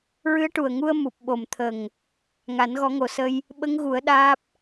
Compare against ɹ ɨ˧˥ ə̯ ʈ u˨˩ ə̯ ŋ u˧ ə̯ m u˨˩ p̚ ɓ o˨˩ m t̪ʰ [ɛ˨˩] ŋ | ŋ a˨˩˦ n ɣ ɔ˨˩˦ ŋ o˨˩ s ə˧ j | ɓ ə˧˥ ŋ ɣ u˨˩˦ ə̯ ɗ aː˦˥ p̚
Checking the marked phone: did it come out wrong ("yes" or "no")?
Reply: yes